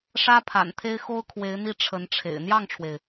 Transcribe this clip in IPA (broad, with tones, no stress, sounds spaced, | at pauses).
ʂ ä˥ pʰ a̰˨˩ n t̪ʰ e˥ ɪ̯ x o˥ ʊ̯ kʰ w e˧˥ ɪ̯ n̪ i˥˩ ʈ͡ʂʰ ə˧˥ n ʈ͡ʂʰ ḛ˨˩ ɪ̯ n̪ j ɑ˥˩ ŋ ʈ͡ʂʰ w e˩ ɪ̯